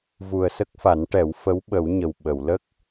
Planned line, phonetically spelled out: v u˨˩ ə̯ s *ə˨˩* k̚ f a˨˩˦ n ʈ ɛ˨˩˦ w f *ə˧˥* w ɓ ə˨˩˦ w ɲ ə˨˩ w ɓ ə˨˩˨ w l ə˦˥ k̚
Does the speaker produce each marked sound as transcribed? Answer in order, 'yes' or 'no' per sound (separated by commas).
no, yes